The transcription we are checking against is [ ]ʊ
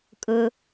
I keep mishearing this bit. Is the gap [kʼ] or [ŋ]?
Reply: kʼ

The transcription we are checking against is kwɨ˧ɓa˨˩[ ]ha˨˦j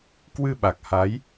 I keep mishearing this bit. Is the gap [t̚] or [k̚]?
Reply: k̚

